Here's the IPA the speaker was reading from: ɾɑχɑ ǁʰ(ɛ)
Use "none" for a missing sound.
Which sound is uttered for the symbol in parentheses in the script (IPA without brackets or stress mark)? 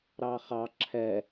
ɛ